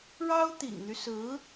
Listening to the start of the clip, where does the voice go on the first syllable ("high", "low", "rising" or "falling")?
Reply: high